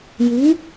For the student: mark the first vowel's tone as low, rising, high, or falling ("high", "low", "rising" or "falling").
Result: rising